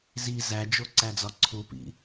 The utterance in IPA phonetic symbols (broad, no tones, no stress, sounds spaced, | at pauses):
z i z æ d͡ʒ o ǀ æ d͡z ɒ ǀʰ u p ḭ